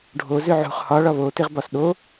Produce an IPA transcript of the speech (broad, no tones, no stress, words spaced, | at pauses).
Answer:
ɖʱozʏ ʕṳχ hɒɭɒ βotɪʁbɒs ɗo